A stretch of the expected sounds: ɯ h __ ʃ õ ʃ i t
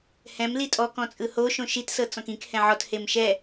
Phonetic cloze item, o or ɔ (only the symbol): o